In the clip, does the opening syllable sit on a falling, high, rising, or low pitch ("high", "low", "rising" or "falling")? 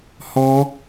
high